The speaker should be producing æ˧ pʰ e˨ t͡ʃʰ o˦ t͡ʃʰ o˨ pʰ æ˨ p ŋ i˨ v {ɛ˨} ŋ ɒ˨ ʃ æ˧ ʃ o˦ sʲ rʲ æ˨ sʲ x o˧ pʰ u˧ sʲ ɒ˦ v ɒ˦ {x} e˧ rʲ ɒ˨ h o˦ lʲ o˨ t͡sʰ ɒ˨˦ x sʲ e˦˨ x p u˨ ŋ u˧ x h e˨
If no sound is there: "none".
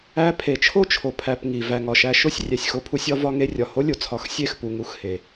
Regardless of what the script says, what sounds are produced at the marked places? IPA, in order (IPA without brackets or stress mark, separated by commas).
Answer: æ˨, ŋ